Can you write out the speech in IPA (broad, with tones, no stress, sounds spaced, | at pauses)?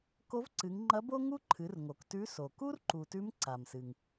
k o˧˥ v ǀ ɨ˩˧ ŋ ŋ͡ǃ ɐ˧˥ b o˥ ŋ u˥ ǃʰ ɨ˩˧ r ŋ o˩ k t ʉ˧˥ s o˩ k u˥ r ǃ u˩ t ʉ˧˥ m ǀ a˩ m s ɨ˩ ŋ